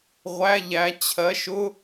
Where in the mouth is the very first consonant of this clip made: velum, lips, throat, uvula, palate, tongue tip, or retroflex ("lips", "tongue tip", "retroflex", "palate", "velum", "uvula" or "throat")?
uvula